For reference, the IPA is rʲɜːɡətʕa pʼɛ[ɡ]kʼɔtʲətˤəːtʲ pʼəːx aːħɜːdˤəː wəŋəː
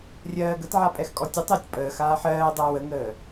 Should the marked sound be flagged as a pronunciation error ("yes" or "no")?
yes